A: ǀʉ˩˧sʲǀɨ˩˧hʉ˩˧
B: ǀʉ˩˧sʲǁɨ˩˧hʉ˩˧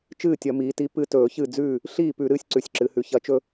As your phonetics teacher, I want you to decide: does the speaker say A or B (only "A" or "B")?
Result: B